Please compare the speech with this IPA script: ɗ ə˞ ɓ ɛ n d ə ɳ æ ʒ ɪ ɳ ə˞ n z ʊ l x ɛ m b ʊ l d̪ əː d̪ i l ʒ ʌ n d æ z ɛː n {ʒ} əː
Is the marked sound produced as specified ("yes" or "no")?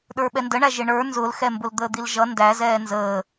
no